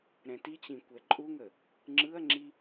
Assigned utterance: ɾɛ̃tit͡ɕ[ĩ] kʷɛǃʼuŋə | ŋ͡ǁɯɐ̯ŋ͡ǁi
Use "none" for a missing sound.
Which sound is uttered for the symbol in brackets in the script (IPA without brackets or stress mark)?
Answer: ĩ